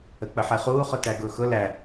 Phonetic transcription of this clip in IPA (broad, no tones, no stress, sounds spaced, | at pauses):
ə k͡p ə ħ e χ uː χ ʊ t æ ɡ ʊː x ʊ l æ